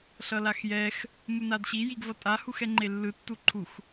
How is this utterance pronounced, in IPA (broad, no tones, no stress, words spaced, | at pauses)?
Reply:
ɬʌlaxjɛx | munadɕi jiɡvʌtʼahux ɛŋ͡ǃelːɯ tːuǃʰux